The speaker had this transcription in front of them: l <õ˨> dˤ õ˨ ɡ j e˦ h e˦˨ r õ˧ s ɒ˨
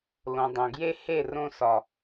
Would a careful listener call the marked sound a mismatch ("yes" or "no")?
no